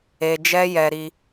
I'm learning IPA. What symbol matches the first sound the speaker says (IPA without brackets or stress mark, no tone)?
e